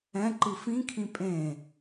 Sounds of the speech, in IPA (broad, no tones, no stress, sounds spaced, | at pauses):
ɛ̃ ǃ ɯ f ĩ kʰ ĩ pʼ ẽ